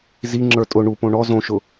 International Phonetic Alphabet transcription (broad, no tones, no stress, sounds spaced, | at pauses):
z i ŋ͡ǁ ə˞ tʼ ʊ ɳ u p õ ɳ ɔ z õ ʃ ʊ